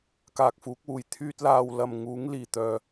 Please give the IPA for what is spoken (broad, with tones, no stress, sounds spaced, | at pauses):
k aː˨ k̚ f uː˨˥ k̚ w uː˨˩ j t̪ʰ yː˧ t̚ l aː˨ w l ɐ˨ m ŋ uː˨˥ ŋ l iː˨˩ t̪ œː˨